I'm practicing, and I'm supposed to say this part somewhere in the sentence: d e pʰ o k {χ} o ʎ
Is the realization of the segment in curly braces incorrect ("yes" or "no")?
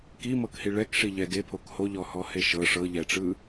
yes